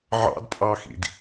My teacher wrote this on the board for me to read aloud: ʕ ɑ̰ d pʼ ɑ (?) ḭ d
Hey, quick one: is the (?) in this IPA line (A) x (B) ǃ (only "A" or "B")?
A